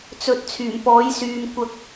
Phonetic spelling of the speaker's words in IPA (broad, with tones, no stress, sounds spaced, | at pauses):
t͡s ɵ˨˥ t̚ t͡sʰ yː˨˩ m p ɔː˨˥ j s yː˨ m kʷ ɐ˨ k̚